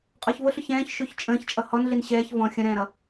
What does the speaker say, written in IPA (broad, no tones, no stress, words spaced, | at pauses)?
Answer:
qʼɔçvʊɬʊç ɛ̃ːç ʃuçt͡ʃʼə̃ːçt͡ʃʼʌ hɔnɮin ɕɛːç vɔ̃ xʲə̃ɾɛ̃ːɾʌ